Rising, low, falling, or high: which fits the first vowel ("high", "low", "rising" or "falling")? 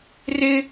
high